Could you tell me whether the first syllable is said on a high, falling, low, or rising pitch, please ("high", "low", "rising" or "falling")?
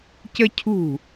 high